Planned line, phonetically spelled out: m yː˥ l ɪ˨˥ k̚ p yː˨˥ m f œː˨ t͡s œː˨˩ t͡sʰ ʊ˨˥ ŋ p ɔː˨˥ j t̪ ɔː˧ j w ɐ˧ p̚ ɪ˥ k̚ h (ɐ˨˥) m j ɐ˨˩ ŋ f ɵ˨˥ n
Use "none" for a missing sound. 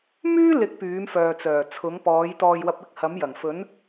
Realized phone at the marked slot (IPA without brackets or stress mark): ɐ˨˥